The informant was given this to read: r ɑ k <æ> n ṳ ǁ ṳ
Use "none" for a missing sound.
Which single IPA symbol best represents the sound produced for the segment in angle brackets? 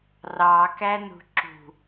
æ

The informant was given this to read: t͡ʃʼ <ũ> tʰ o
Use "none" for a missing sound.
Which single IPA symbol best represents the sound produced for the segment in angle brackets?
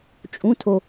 ũ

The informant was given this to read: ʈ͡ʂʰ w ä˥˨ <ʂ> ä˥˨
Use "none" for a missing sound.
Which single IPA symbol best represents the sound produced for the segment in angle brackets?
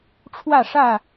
ʂ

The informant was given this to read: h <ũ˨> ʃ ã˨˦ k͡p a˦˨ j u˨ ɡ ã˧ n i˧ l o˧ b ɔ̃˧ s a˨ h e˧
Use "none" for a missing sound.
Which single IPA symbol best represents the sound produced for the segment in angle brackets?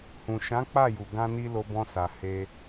ũ˨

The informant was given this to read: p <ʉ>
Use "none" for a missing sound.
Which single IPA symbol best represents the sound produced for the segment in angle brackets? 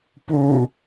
u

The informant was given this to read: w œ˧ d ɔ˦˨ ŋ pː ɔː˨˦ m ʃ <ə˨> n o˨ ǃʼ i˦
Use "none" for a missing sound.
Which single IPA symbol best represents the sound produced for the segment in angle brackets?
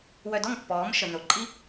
ə˨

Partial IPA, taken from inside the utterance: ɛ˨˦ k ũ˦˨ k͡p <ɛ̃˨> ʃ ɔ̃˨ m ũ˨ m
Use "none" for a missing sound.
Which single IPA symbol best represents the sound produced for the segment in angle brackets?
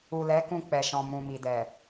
ɛ˨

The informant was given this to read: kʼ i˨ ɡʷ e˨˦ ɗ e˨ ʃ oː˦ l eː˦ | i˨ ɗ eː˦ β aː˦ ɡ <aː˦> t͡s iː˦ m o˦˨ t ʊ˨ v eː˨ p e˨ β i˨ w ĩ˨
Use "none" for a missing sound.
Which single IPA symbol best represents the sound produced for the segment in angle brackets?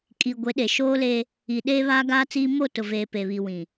aː˦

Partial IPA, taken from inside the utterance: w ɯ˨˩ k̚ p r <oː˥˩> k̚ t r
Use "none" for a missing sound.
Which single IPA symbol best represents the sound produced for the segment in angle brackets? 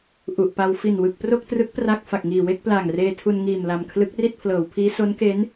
o˥˩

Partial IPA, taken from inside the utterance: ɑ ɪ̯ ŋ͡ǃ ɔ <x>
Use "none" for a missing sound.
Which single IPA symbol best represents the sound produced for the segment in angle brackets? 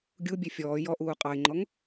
ŋ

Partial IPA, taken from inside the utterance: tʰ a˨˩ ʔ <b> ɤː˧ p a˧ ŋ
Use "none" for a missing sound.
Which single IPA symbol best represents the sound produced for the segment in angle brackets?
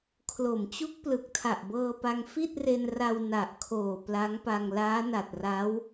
b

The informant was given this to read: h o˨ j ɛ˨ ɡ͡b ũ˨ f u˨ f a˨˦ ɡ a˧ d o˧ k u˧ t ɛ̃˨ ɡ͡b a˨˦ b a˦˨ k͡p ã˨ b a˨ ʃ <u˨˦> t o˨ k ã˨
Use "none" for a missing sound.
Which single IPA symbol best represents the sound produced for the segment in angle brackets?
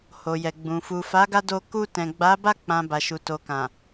u˨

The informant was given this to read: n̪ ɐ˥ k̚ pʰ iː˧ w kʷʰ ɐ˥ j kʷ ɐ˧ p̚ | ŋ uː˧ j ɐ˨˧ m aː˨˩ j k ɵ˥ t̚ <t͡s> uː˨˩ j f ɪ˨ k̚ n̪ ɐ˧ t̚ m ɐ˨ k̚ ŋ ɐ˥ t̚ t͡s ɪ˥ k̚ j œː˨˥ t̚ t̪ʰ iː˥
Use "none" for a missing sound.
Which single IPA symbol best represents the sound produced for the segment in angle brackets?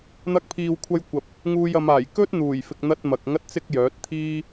n̪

